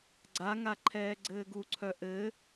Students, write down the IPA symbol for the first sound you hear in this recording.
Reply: ɡ͡ǀ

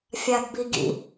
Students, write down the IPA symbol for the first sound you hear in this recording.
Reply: fʲ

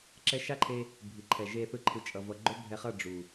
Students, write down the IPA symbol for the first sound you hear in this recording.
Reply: ǁ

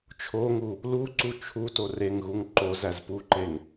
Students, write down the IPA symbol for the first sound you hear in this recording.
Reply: t͡ʃʰ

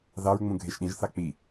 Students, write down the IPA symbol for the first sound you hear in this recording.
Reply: ð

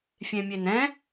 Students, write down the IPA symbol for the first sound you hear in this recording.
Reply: fʲ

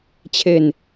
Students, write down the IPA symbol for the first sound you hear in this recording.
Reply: t͡ɕʰ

